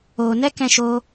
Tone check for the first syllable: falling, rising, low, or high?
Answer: low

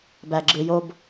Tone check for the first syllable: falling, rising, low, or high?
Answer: low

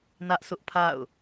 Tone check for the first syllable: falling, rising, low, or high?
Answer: high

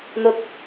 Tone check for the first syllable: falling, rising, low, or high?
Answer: low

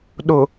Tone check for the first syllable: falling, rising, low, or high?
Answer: low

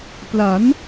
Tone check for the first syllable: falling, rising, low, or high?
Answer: rising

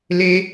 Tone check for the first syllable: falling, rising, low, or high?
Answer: high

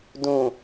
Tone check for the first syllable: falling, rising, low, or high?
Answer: low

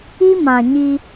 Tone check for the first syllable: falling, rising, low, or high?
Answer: high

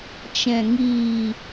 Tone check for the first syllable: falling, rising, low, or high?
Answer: low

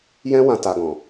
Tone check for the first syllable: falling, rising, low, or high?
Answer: high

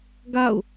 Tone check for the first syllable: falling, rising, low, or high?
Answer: falling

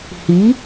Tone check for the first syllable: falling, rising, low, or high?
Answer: rising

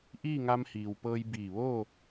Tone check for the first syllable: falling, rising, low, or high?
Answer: falling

